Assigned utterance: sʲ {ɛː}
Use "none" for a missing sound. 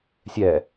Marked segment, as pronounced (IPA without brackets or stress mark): ɛ